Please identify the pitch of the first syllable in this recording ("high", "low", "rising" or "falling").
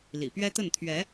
low